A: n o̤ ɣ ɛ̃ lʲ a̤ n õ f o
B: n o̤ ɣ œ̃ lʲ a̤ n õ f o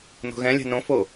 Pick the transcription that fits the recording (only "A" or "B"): A